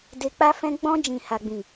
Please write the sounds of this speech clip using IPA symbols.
d e˧ k͡p a˦ f ɛ̃˦ ɡ͡b ɔ̃˧ d͡ʒ ĩ˨ h a˨ ɡ͡b ĩ˨

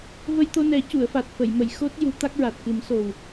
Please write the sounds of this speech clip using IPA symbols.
v ə˧ j t̪ o˧ n ɛ˨˩˦ c u˨˩˨ ə̯ f a˨˩ t̚ f ə˨˩˨ j m ə˨˩˨ j x o˦˥ t̚ j u˨˩˦ t̪ a˦˥ k̚ ɹ a˨˩ t̚ k ɨ˨˩˦ m s o˨˩ w

